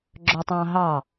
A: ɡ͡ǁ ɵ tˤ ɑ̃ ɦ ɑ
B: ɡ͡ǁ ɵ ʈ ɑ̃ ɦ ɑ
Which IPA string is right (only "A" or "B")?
A